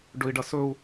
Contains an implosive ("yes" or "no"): no